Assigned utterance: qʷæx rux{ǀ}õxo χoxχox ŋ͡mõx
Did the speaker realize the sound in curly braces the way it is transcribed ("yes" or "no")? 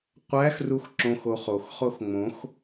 no